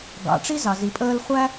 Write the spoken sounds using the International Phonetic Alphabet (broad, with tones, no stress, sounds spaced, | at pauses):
ɡ ɑ̰˨ ʈ͡ʂ i˦ z ɑ˨ z i˨ pʼ əː˧ l χʷ æ˦